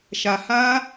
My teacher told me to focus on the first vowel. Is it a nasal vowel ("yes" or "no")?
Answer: no